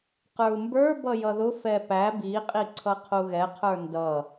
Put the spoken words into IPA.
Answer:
q ə˞ u̯ m b ə˞ b ʌ j ʌ ð ʊ f ɛ p æ b i qʼ i ǀʰ ʌ qʰ u ɣ ɛ qʰ ə˞ n d ʌ

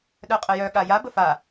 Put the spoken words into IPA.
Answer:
ɗ œ qʼ ə j œ ɠ a j a b ə f a

